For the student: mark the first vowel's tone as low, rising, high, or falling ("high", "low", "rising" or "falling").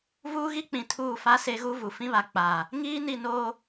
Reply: high